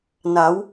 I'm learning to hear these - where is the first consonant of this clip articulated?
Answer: tongue tip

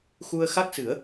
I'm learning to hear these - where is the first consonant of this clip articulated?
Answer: velum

